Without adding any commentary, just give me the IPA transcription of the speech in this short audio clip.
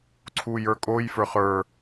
ǀʰujə˞kʼoj fə˞χə˞

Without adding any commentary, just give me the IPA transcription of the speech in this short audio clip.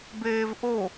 beːvʔo

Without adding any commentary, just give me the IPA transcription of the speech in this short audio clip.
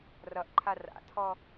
rʌʔǃʰa ra̰tʰɔ

